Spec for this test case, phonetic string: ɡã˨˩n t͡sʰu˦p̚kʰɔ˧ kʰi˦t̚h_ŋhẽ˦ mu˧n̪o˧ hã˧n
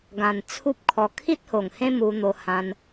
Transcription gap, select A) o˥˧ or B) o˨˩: B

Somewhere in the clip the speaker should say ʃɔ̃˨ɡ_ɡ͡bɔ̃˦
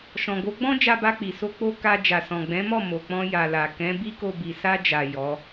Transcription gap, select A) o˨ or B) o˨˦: B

